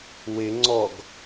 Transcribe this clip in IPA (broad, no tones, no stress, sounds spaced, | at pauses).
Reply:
w ɪ ŋ͡ǀ ɔ ɡ